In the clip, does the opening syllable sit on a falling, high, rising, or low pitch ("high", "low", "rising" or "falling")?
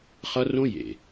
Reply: high